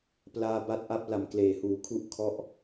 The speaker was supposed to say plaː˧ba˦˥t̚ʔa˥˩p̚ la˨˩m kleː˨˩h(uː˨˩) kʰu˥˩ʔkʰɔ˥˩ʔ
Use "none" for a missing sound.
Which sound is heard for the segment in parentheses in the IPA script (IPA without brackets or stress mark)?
uː˩˦